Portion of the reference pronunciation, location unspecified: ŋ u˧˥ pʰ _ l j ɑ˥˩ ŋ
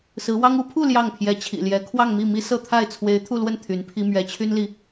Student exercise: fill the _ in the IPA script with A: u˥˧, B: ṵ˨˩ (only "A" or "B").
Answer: A